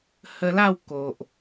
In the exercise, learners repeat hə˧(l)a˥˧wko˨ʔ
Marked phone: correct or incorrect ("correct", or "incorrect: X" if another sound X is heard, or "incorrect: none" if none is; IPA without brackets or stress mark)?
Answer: correct